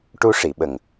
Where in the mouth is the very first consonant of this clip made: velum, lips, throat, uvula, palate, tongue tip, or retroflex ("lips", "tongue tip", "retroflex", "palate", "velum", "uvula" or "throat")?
retroflex